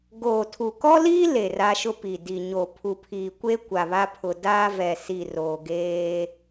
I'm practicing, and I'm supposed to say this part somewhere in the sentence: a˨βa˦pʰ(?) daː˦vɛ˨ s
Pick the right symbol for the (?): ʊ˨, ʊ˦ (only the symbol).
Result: ʊ˨